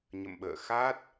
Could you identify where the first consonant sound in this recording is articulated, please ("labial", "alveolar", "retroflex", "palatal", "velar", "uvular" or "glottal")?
palatal